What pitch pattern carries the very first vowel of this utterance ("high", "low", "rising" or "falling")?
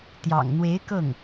low